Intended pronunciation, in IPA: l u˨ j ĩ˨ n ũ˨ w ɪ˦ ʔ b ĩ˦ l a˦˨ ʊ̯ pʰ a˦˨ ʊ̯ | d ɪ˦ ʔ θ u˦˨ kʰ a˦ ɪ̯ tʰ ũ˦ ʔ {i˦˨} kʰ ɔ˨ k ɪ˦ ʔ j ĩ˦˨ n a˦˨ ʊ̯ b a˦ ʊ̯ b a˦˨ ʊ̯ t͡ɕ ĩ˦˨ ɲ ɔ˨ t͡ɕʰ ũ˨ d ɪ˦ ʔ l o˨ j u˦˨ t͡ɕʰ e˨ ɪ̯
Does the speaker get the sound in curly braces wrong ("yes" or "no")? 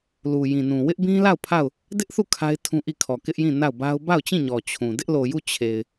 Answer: no